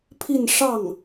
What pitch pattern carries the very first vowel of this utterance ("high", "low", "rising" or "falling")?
falling